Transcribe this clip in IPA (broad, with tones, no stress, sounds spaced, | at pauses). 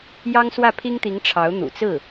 j ɑ˥ ŋ s w ä˥˩ pʰ i˥ ŋ t̪ i˧˥ ŋ ʈ͡ʂʰ ɑ˧˥ ʊ̯ n̪ ṵ˨˩ t͡s ɹ̩˥˩